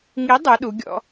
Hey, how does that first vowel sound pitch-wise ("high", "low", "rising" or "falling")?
rising